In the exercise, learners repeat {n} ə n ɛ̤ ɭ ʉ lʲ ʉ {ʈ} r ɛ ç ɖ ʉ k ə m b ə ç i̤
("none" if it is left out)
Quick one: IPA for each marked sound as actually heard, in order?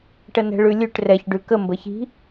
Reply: ʈ, ʈ

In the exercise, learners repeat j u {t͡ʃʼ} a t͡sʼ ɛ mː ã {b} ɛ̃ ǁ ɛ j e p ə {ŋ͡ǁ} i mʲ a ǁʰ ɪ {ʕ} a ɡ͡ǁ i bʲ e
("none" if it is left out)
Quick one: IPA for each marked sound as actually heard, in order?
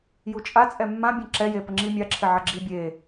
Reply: t͡ʃʼ, bʲ, ŋ͡ǁ, ʕ

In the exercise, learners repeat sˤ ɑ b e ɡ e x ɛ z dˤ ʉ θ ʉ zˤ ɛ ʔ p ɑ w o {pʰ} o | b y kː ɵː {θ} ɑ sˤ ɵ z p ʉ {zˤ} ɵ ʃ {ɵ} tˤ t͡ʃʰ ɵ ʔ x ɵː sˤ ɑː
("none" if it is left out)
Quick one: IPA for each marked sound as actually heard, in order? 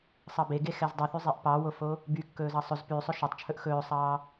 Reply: f, z, sˤ, ø

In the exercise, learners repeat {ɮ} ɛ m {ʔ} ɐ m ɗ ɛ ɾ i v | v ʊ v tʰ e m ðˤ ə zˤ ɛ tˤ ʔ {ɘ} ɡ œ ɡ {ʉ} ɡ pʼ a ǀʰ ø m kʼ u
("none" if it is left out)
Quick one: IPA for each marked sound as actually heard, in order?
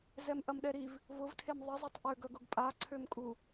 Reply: z, ʔ, ø, ʊ

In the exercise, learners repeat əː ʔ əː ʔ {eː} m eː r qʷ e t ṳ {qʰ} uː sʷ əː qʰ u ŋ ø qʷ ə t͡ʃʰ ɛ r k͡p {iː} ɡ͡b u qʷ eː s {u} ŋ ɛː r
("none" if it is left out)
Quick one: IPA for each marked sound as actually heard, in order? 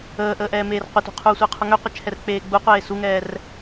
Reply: ɛː, qʰ, eː, u

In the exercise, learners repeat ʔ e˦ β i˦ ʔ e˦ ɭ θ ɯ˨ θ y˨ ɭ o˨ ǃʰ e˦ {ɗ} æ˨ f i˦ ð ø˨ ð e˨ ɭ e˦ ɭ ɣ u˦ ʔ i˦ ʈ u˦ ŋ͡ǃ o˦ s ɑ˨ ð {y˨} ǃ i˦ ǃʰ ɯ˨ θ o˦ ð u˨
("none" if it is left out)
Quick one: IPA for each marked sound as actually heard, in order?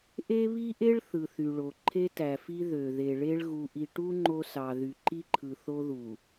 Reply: t, y˨

